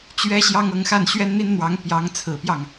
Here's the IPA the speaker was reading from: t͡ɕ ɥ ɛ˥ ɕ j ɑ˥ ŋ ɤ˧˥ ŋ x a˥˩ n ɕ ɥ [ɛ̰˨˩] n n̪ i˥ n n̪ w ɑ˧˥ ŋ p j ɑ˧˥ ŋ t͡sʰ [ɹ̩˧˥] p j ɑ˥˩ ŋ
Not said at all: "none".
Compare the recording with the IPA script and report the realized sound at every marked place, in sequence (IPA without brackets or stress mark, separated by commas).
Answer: ɛ˥, ɹ̩˨˩